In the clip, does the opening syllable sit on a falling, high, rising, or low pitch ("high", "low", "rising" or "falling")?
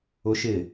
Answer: high